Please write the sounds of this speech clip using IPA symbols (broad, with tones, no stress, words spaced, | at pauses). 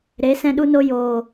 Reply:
ɾe˨˦sɛ̃˧ɗu˧no˧ joː˨